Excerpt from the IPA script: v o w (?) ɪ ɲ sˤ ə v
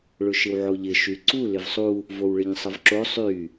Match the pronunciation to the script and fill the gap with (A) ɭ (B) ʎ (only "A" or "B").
A